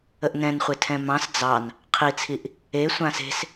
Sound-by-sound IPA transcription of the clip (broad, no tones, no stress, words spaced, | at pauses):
əʔnɛ̃nχʷe tʰɛ̃mɑ̃s d͡zɑn | qʰit͡sʰiʔ | e sʷãse̤s